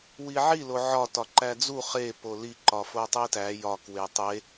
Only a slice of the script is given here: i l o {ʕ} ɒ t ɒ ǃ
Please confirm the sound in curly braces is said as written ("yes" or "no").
yes